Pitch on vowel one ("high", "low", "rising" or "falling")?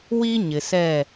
high